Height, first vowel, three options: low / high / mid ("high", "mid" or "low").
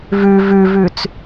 high